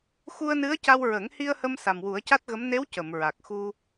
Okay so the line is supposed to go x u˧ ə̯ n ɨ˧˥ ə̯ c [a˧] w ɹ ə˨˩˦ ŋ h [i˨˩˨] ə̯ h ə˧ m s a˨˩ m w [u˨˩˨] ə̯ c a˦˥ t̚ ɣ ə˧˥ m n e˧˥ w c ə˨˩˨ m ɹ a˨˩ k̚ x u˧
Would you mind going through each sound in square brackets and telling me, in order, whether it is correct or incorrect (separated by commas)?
correct, incorrect, incorrect